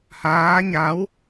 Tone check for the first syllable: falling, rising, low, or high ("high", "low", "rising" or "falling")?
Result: rising